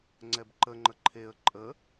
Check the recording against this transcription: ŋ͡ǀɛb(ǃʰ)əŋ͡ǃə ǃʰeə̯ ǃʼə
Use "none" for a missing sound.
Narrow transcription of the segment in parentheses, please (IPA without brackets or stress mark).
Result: ǃ